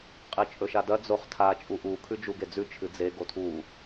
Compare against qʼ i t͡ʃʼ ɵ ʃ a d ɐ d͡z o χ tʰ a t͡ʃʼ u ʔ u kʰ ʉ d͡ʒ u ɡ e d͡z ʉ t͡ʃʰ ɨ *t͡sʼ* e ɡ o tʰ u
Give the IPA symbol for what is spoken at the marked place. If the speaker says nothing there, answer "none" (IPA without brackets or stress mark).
d͡z